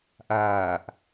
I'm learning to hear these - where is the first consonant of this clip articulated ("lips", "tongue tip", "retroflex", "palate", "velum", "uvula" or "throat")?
throat